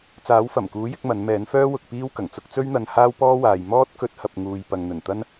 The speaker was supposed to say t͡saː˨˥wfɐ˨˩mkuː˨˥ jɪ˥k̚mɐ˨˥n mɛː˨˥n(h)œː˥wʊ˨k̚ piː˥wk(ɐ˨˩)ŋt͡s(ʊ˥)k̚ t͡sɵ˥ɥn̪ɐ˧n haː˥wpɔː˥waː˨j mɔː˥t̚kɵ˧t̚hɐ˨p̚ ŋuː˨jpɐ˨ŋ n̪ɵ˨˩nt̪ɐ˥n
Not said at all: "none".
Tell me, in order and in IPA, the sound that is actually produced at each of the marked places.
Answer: f, ɐ˨˩, ʊ˥

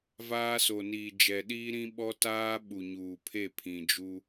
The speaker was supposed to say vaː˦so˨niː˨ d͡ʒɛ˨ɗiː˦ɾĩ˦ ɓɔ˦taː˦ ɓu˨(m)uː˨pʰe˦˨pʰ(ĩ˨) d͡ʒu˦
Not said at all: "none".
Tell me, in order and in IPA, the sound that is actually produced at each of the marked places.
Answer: ɲ, ĩ˨

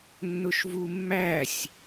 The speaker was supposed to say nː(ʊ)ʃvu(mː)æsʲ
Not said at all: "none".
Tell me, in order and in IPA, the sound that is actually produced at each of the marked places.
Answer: ʊ, mː

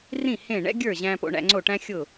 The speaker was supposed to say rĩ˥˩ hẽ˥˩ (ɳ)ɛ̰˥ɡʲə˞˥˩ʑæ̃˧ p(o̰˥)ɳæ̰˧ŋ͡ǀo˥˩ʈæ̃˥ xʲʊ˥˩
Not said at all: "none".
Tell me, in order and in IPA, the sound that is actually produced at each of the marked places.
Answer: ɳ, o̰˧

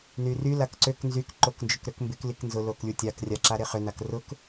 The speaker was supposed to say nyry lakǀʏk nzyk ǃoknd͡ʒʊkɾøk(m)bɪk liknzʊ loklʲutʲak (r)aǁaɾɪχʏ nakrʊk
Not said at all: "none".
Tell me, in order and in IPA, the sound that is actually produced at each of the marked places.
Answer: m, rʲ

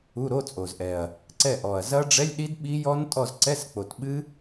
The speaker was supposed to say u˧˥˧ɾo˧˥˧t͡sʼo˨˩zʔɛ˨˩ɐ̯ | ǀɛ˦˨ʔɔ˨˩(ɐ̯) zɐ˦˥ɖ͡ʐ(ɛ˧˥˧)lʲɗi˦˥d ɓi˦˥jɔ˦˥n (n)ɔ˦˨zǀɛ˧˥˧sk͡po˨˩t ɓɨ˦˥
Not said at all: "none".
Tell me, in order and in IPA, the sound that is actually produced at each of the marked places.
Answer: ɐ̯, ɛ˧˥˧, tʼ

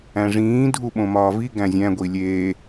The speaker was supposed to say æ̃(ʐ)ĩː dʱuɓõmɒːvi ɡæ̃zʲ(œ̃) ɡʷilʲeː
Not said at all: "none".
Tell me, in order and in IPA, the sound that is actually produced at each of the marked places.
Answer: ʐ, æ̃

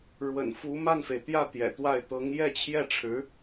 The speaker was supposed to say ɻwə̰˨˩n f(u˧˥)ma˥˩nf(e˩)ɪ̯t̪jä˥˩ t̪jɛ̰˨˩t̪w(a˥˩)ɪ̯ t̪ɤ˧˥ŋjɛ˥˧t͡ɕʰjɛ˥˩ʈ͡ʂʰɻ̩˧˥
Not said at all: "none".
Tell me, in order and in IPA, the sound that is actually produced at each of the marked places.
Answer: u˧˥, e˩, a˥˩

